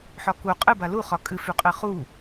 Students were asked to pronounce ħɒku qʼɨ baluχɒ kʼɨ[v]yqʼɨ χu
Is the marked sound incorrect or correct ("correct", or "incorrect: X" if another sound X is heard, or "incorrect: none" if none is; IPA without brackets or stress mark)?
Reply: incorrect: f